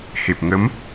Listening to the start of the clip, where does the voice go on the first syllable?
low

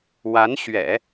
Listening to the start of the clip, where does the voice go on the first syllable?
rising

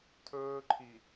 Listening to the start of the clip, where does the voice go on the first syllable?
high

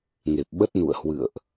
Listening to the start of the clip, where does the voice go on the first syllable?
low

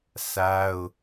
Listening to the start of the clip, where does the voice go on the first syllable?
high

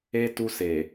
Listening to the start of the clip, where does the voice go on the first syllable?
high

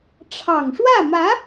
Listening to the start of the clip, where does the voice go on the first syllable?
low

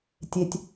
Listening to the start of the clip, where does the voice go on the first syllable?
low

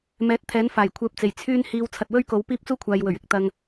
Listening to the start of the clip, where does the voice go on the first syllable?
rising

